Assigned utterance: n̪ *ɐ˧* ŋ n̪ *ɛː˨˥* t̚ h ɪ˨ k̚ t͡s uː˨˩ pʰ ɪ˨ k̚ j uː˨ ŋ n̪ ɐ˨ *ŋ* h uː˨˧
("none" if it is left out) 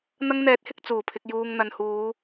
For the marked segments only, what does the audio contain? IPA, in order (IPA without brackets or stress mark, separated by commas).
ɐ˧, ɛː˨˥, n